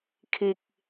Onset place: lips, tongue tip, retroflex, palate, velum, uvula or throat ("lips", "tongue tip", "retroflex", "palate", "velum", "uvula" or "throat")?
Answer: velum